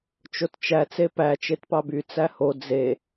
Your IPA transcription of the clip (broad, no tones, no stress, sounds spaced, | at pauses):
t͡ʃ o t t͡ʃ æ t͡s e p æ t͡ʃ e t p ɑ b y t͡s æ h o d͡z e